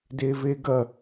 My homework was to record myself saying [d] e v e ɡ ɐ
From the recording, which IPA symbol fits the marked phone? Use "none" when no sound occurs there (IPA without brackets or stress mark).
d